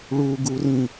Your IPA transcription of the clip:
ɭ u ɡ u r ĩ

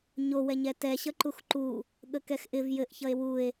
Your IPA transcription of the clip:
ɲ o w ɛ ɲ ɛ t ɛ ɕ ʌ ǃ u x ǃ u | ɠ ə k ɛ x ʔ ɪ v j ɘ ʔ ç ʌ e̯ w u e̯

